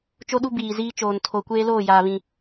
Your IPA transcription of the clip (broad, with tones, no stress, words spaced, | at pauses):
t͡ʃo˦ɗu˦ biː˨ziː˦t͡ʃoː˨n tʰo˨ kʷeː˦loː˦˨ jaː˨βĩ˨